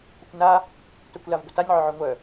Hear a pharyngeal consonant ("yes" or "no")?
yes